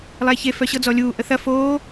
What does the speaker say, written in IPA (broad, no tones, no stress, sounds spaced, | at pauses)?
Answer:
lˠ ɛ ç e f œ ɕ ɤ d͡z ɔ lʲ uː ʔ ə θ ɐ f oː